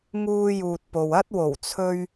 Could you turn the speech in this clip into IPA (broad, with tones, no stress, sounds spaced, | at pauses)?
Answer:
ŋ uː˧ j uː˨ t̚ p o˨ w ɐ˥ t̚ w o˨˩ w t͡sʰ ɵ˧ ɥ